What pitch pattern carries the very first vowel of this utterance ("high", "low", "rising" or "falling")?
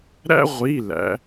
high